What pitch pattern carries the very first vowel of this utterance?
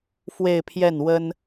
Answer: falling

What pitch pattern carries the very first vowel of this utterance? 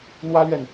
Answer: high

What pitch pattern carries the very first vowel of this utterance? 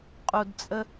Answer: low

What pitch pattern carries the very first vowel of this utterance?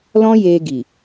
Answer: high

